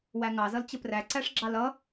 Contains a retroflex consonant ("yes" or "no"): yes